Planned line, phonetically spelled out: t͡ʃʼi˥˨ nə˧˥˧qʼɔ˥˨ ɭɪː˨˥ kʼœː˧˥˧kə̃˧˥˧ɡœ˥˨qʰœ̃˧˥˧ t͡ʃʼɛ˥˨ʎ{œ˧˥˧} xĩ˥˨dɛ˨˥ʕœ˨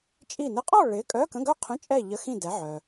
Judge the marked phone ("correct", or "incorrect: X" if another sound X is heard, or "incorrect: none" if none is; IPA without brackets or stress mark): incorrect: ə˧˥˧